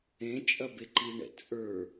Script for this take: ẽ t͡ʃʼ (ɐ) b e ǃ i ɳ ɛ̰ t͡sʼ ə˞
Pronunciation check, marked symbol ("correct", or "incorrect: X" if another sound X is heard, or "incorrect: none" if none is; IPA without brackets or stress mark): correct